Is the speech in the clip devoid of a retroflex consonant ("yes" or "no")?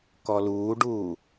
no